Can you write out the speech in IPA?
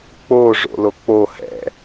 k͡p o ʐ o̰ l o k͡p o h ɛ̰

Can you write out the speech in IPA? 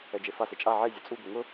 ɛ d͡ʒ e f a s e t͡ʃʼ a ʕ e zʲ o t͡sʼ u ɡ ʊ ŋ ʊ

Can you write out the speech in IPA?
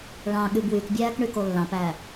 ɭ ɑ̃ ɠ y b w y k bʲ æː k ɳ y k o lː ɑ̃ p æː

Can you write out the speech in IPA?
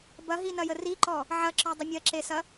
b ɐ ɦ i n ɐ j ə r i ǃ ɔ | ʕ ɐ ǁ ɔ dˤ ə mʲ ɐ ǁ e s ɐ

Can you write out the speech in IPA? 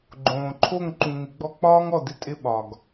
ɡ͡ǃ õː˨ ǃʰ o˦˨ ŋ ǃ ũ˨ ŋ ɪ˨˦ ɡ͡b ɔ˦ k͡p ɒː˦ ŋ ɔ˨ d ɪ˦ tʼ ɪ˦˨ ɓ ɒ˨ ɡ

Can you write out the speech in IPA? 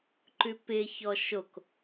ǃ ʉ p ɪ ç ɔ ʃ o k

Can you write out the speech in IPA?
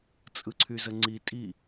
t͡sʼ ɯ ǀʰ y z ə ŋ͡ǀ i tʼ i

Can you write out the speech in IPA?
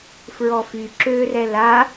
f ɹ ɔ f y ǁ ø r ɛ l a

